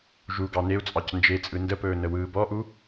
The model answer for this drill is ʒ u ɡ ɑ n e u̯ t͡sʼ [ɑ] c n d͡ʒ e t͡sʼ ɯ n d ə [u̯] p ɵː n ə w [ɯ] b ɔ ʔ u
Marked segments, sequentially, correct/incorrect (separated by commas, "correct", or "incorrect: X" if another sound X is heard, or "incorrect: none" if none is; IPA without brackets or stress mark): correct, incorrect: none, incorrect: ɯː